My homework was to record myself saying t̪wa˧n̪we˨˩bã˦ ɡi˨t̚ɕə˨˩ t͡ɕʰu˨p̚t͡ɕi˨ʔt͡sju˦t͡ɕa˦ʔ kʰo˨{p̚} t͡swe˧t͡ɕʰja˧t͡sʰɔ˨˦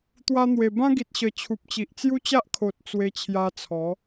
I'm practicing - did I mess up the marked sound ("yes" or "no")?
yes